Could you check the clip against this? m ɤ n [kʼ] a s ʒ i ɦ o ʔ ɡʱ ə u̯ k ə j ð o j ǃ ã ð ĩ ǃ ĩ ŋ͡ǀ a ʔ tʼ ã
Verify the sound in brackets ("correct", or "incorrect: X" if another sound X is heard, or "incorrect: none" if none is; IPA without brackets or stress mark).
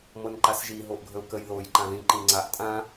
incorrect: ǃ